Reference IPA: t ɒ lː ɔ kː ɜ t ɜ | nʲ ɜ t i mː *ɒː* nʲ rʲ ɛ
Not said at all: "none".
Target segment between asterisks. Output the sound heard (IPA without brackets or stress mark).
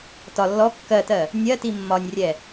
ɒ